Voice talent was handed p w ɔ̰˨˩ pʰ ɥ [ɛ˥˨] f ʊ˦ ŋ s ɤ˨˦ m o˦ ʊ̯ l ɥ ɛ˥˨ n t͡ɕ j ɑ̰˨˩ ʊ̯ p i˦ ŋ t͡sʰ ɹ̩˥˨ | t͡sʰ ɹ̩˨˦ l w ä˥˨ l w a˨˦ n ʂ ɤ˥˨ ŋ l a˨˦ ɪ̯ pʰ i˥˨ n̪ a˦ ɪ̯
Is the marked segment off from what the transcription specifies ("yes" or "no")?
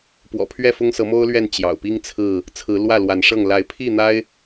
no